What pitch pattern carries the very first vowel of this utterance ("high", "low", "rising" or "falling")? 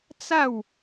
falling